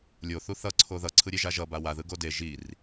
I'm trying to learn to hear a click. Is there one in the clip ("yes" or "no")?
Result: yes